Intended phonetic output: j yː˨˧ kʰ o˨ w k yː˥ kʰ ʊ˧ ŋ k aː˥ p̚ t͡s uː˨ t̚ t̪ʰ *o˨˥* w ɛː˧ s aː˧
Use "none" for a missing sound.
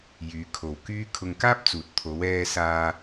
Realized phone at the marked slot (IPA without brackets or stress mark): o˨˧